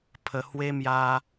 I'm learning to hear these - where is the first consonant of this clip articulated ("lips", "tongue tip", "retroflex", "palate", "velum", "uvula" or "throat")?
lips